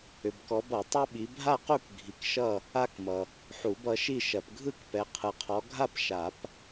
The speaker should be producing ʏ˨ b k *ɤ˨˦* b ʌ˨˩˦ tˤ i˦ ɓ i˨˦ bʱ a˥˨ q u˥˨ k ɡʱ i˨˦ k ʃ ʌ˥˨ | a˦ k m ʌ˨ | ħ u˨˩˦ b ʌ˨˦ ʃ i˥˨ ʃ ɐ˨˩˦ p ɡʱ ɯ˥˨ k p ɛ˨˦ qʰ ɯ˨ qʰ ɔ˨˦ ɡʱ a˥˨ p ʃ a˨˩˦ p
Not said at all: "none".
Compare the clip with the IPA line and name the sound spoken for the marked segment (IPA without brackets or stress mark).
ɔ˨˦